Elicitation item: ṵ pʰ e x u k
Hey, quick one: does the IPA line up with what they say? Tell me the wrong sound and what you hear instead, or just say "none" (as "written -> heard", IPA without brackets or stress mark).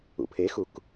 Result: none